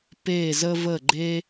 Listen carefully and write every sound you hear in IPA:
p e˥˧ z ə˥ v ə˥˧ ɡ͡ǃ e˥

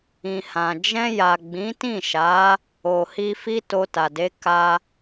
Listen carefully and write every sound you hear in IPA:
ĩ˨ h ã˨ d͡ʒ ɛ̃˧ j a˨ ɡ͡b ĩ˨˦ t ĩ˦˨ ʃ a˨˦ | o˨ h i˧ f i˦ t o˧ t a˨ d e˨˦ k a˧

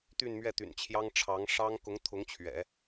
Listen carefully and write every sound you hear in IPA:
t̪ y˥˧ n m ɥ ɛ˥˩ t̪ y̰˨˩ n t͡ɕʰ j ɑ˥ ŋ ʈ͡ʂʰ ɑ˧˥ ŋ ʂ ɑ˥ ŋ k ʊ˧˥ ŋ t̪ʰ ʊ˧˥ ŋ t͡ɕʰ ɥ ɛ̰˨˩˦

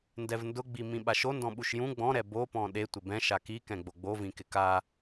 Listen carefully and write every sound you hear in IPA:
n d ɛ v n d ʊ ɡ͡b i m ĩ ɓ a ʃ o n d ɔ̃ ɓ u ʃ j ũ ɡ͡b ɔ̃ ɾ ɛ b o p ɔ̃ ɗ e tʷ ɪ b ɛ̃ ʃ a k i k ɛ̃ ɡ͡b o ɡ͡b o v ĩ k ɪ k a

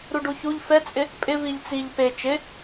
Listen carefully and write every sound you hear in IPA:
ɾ u ɖ u ç u ʎ f ɛ t͡sʼ ɪ | pʼ ɪ v i ʎ t͡s i ʎ p e t͡ʃ ɪ

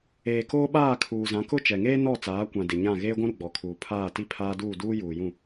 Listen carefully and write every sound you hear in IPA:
eː˨ k oː˦ ɓ aː˦˨ kʰ uː˨ z ã˨˦ k ʊ˦ t͡ʃ ɛ˨ ŋ eː˦ n ɔ˦˨ t͡s aː˨˦ kʷ ã˨ d ɪ˨ ɲ ã˦˨ ɣ eː˦ ɡʷ ũ˦ ɾ u˨ ɡ͡b ɔ˨ kʰ uː˨ pʰ aː˦˨ t i˦ pʰ aː˦ d uː˦˨ d uː˦ j uː˨ j ũ˦˨

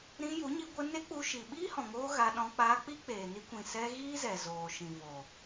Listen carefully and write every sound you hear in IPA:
ɾ ĩ˧ j u˨˦ ɲ i˧ ɡʷ ə˧ n e˦ k͡p u˧ ʃ i˨ ɓ iː˦ h ɔ̃˨ ŋ oː˧ ɣ a˧ ɗ ɔ̃˧ k͡p aː˧ k͡p i˦ k͡p eː˨ n i˧ kʷ ĩ˨ s ɛ˧ ɣ iː˦ z ɛ˨ z oː˨ ʃ ĩ˨ v o˨

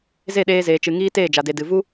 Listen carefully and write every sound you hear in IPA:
z e˦˨ ɗ eː˧ z eː˨ t͡ʃ ɨ˨ ŋ iː˦ t eː˦˨ d͡ʒ a˨ d e˨ d ɨ˨ v u˦

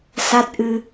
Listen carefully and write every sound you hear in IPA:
s a˦˥ t̚ ʔ ɨ˧

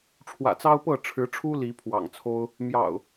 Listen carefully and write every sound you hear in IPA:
ʈ͡ʂʰ w ä̰˨˩ t͡s ɑ˦ ʊ̯ p ɤ˥˨ ʈ͡ʂʰ ɻ̩˨˦ ʈ͡ʂʰ u˦ l i˨˦ pʰ w ɑ̰˨˩ ŋ t͡sʰ o˦ ʊ̯ | m j ɑ̰˨˩ ʊ̯

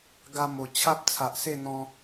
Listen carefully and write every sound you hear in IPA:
ɡ a˧ m o˨˩ t͡ɕʰ a˦ p̚ t͡sʰ a˨ ʔ s e˥˧ n̪ ɔ̃˧

